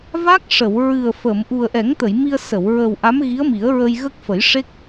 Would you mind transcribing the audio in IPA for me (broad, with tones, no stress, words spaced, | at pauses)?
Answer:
va˦˥k̚ʂə˨˩˨w ɹɨ˨˩ə̯fə˨˩˨m ʔu˨˩ə̯ʔɛ˨˩˦ŋt̪ə˨˩˨j mi˧ə̯sə˨˩˨w ɹə˨˩w ʔa˧˥mɣi˧˥ə̯mi˨˩˦ə̯ɹə˧j ɣə˦˥k̚fə˨˩˦jʂe˦˥k̚